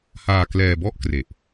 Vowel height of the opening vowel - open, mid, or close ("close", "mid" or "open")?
open